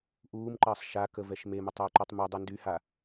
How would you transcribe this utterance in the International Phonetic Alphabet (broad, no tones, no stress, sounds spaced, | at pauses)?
ʔ uː m ǃ əː sˤ ʃ a k ə v ɛ ʃ m e m ʊ tˤ əː ǃ u tˤ m u dˤ ɛ n d y h a